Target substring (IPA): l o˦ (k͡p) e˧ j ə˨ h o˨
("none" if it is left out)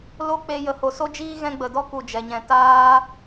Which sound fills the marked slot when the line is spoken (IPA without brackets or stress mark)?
k͡p